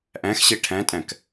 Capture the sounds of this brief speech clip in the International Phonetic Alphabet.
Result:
ʔ æ̃ x ɕ e ʈʰ æ̃ tʼ æ̃ k

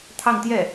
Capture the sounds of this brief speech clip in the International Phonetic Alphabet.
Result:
t̪ʰ ɑ˥˧ ŋ t̪ j ɛ˥˩

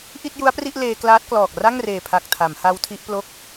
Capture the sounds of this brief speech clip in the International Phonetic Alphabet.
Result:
ʔ i˥˩ t̚ j u˦˥ a̯ p r i˥˩ ʔ l eː˧ k l aː˦˥ t̚ k l ɔː˨˩ k̚ r a˥˩ ŋ r eː˨˩ pʰ a˨˩ k̚ tʰ a˩˦ m h a˦˥ w tʰ i˦˥ ʔ p l o˥˩ k̚

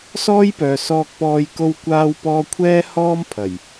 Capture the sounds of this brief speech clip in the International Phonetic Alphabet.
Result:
s ɔː˥ j p œː˨ s ɔː˧ k̚ p ɔː˧ j k o˥ w kʷ aː˥ w p ɔː˥ kʷʰ ɛː˥ h ɔː˥ m pʰ ɐ˨˩ j

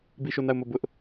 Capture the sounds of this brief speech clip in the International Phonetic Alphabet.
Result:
b i˦˨ ʃ o˦˨ n a˦˨ ʊ̯ m o˦˨ b ʊ˦ ʔ

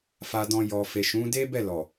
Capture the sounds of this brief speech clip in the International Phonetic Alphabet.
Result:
f a˨ d ɔ̃˨ j ɔ˨ f e˨ ʃ ũ˨˦ d e˦ b ɛ˦˨ l ɔ˨

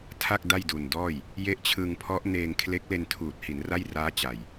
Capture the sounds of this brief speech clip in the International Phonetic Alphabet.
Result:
tʰ a˥˩ k̚ d a˥˩ j d u˨˩ n d ɔː˥˩ j | j e˦˥ ʔ t͡ɕʰ ɯ˧ ŋ pʰ ɔ˦˥ ʔ n eː˧ ŋ kʰ l e˦˥ k̚ l e˧ n tʰ uː˨˩ t̚ h i˩˦ n r a˥˩ j r aː˦˥ t͡ɕ a˨˩ j

